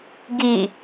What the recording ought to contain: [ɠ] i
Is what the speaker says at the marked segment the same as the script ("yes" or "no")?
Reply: no